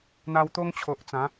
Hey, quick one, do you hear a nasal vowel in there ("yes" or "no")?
yes